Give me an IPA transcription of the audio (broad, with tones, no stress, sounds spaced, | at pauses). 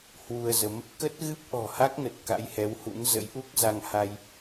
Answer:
h w u˧ ə̯ z ə˨˦ m | k ə˦˥ t̚ ɣ ɨ˦˥ p̚ ʔ ɔ̤˨˩ h a˦˥ k̚ n ə˨˩ t̚ k a̰˧˥ j h ɛ˨˦ w h ṵ˧˥ n z ə̰˧˥ j ʔ u˦˥ k̚ z a˧ ŋ h a˧ j